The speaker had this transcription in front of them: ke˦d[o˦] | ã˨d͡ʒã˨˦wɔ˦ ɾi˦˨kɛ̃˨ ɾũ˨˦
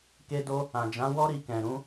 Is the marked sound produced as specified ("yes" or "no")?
yes